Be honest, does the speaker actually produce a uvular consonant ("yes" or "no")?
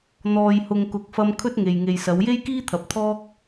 no